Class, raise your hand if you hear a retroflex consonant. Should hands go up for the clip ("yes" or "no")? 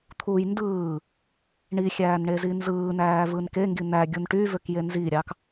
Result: yes